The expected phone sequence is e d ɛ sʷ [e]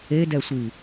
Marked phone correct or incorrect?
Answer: incorrect: i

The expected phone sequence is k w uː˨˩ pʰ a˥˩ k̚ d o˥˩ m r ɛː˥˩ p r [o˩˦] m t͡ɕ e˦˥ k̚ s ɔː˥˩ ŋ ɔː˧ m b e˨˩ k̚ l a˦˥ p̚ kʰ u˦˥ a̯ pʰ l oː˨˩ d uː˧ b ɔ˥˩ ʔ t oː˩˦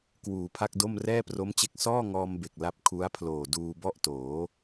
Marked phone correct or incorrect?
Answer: incorrect: o˦˥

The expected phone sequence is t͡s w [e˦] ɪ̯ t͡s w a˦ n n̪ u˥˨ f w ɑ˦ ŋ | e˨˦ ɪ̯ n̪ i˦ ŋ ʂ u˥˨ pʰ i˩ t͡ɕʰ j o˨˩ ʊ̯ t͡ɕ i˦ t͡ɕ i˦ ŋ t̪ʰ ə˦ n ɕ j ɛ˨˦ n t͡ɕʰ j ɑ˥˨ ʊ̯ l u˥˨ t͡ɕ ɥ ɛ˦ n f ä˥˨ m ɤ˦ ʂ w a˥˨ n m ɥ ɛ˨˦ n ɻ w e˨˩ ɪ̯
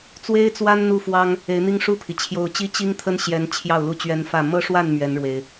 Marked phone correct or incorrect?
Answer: correct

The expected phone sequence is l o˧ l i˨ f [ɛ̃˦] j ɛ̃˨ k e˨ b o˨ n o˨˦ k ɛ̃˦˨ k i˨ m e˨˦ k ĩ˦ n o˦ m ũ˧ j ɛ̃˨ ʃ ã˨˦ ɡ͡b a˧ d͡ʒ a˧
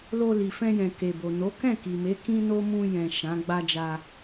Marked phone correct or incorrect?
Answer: incorrect: ɛ̃˧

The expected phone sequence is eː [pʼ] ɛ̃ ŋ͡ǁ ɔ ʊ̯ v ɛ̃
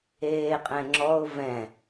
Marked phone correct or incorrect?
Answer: incorrect: qʼ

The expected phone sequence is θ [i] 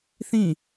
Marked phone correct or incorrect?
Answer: incorrect: ĩ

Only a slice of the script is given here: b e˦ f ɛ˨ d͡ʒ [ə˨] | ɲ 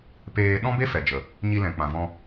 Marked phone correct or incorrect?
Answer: correct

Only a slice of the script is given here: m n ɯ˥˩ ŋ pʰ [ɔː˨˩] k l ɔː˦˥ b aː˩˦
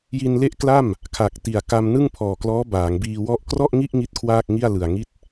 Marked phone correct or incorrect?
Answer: correct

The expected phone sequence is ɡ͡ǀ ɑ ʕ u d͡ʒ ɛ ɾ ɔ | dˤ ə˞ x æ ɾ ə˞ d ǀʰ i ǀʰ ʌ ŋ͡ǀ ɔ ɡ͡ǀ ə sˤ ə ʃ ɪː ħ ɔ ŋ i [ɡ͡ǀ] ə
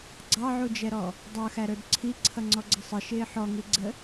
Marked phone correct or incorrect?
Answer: correct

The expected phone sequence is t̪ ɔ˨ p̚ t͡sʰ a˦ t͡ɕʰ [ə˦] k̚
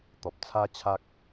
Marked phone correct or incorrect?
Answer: incorrect: a˦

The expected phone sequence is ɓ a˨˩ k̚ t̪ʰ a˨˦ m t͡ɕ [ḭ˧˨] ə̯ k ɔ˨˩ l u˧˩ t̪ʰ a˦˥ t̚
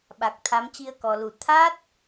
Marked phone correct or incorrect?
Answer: incorrect: i˧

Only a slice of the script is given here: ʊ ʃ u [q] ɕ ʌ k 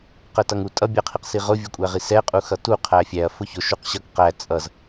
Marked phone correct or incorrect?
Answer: correct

